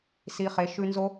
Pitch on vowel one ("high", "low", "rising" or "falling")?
low